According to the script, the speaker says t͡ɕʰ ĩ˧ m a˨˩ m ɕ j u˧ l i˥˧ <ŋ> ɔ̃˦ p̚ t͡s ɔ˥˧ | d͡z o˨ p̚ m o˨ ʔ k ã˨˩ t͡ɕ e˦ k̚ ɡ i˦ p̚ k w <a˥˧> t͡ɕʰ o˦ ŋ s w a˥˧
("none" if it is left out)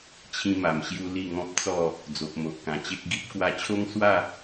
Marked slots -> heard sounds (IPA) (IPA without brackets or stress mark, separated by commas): ŋ, a˧